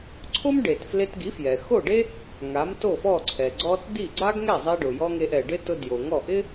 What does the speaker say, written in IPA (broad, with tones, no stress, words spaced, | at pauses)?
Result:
ǀʰo˥mɖe˩t fle˧tɡi˩˥fjɛ˩ xo˥˩ɖe˥ | ŋa˩˥mto˥˩fɔ˥˩ǀʰɛ˩ ɡ͡ǀɔ˧t di˥˩ɡ͡ǀa˥ɡ ŋɛ˥˩zˤe˧ɖʊ˩jɔ˧ ŋe˧ʔɛ˩ɖɪ˥ tʊ˧djo˩ ŋɔ˥˩ ʔɪ˥